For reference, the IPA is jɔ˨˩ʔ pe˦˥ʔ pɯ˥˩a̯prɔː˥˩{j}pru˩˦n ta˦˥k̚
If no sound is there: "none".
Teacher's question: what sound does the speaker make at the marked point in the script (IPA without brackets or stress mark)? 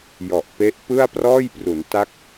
j